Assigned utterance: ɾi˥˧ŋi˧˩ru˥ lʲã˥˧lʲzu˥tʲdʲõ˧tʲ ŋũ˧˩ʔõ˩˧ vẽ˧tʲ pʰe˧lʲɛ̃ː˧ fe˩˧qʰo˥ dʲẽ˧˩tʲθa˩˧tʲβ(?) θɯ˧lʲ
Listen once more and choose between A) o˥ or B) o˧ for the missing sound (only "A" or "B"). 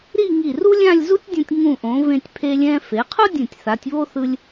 A